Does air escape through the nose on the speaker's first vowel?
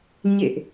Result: no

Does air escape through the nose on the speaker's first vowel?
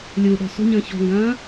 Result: no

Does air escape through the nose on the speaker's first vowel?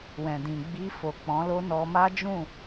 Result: yes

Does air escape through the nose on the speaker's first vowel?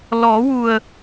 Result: no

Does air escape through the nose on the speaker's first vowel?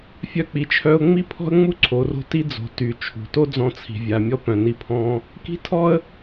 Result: no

